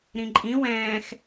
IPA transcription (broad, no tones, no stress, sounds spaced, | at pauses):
ɾ ĩ ǃʼ ĩ w ɛ̃ː x